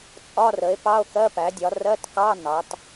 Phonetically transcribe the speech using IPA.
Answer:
t͡sʼ ɒ˧˥˧ r ə˩˥ e̯ p ɑ˧˥˧ o̯ k ɜ˧˥˧ p æ˩˥ dʲ ɒ˩˥ r ɜ˧˥˧ t k ɑ˧˥˧ n ɑ˩˥ t

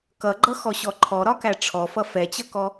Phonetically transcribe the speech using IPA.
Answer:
k ʌ ɡ͡ǃ ʌ x ɔ ɕ ɔ ǃʰ ɔ ɾ ɒ k æ ʈ͡ʂʰ ɔ f ʌ f ɛ t͡ɕ ʌ k ɔ

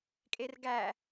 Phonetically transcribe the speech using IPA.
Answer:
kʼ e r ɡ æ

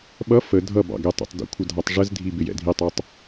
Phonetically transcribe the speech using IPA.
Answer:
ɓ ʌ f ə dʱ ʌ b ɑ̰ ɡ ɛ tˤ ɛ̰ tˤ d ṵ kʷʰ ə dʱ ɑ tˤ ʐ ə z dʱ i b ɪ j ɛ̰ dʱ i tˤ ə˞ tˤ

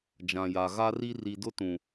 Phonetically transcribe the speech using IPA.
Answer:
d͡ʒ ã˨ j a˨ ɣ a˦ r i˦ r i˨ d ʊ˦ t ũ˨

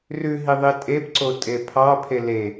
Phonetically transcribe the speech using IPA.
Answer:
r ʉ ɦ i ðˤ i tʼ e b ǀ o tʼ e pʰ ɑ pʰ e l e

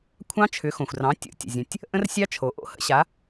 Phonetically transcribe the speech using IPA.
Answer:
kʷʰ ɑ̃˦˥ t͡ʃʰ ʏ˩˥ x õ˩ xʷ r ɑ̃˩˥ tʲ o̰˩˥ tʲ ə̰˩ zʲ ə̃˩ tʲ | ʔ ə̃˦˥ r sʲ ɑ˦˥ t͡ʃʰ o˩ ʔ o̰˦˥ h ə̰˦˥ ɕ a˩˥

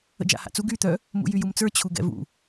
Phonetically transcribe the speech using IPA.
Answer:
ə̰ d͡ʒ a̰ h a̰ t͡s u ɡ y t̪ œ | m ṵ j y j u m t͡s ə˞ t͡ɕʰ u ɡ ɛ̰ v ṵ

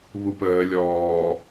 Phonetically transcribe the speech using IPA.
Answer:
β u p əː lʲ ɔː

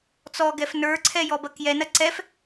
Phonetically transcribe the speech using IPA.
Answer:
t͡s ɔ ɡ ɛ f n ə˞ ǀʰ ɛ j ɔ b ɐ k j ɛ n ɐ ǀ ɛ f

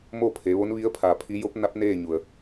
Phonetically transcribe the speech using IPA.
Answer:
m o˥˨ pʰ e˩˧ ʋ o˧˥ n ʋ i˧˥ ə̯ pʰ a˧˩ pʰ i˧˥ j o˧˥ p̚ n a˧˥ p̚ n eː˥˨ ɲ u˩ ə̯

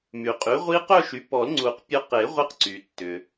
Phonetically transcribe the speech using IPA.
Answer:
m y˩ qʼ y˩˥ ʁʷ i˦˥ q œ˥˧ ʃ y˩˥ p ɔ˨˩˦ l ŋ͡ǀ u˨˩˦ q pʲ ɔ˧ q e˨˩˦ ʁʷ i˧ q ǀ y˩ tː ʏ˩

